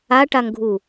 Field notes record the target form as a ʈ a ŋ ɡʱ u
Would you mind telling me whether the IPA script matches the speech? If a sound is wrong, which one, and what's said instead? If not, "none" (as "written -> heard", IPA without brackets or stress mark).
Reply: none